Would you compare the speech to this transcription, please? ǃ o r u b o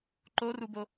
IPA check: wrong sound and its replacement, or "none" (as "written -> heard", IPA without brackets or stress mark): none